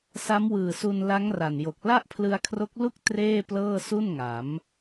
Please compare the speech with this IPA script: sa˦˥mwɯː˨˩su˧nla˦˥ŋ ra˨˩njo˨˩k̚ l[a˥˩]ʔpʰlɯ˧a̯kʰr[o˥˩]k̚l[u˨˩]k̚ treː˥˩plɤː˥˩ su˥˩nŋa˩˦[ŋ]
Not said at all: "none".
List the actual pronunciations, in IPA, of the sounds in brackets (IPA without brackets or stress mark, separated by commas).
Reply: a˥˩, o˦˥, u˥˩, m